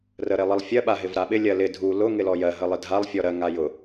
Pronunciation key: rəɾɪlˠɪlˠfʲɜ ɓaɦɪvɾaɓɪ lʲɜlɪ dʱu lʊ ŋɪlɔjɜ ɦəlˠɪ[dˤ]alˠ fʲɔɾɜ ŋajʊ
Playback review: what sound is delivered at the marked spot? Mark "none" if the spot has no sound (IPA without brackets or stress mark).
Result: dʱ